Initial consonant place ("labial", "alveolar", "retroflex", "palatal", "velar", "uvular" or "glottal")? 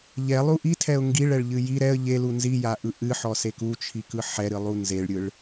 palatal